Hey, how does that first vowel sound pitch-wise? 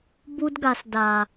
high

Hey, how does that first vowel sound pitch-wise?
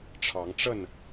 rising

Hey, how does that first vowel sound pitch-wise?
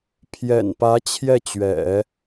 low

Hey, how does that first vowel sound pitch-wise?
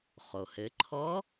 low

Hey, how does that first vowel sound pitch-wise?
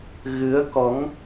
rising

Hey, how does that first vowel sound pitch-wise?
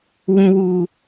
low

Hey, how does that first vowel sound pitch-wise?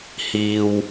low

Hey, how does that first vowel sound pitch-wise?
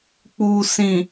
low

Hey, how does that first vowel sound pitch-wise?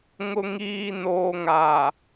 low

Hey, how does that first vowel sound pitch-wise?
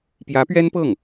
rising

